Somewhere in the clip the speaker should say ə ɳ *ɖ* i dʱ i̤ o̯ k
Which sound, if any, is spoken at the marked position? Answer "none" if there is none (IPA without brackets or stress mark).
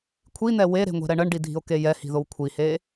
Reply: ɖ